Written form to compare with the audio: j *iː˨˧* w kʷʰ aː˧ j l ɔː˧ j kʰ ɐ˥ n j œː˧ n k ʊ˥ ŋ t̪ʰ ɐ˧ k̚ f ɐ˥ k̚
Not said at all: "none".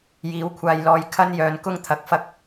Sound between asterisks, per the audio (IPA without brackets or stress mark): iː˨˥